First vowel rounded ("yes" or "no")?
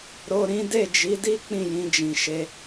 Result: yes